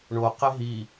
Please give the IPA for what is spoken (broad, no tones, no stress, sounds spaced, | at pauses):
ɳ o q e ɦ i